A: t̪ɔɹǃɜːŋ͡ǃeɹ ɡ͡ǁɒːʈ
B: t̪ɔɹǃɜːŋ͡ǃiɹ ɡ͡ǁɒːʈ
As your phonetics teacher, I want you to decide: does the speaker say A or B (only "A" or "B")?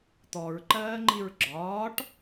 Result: B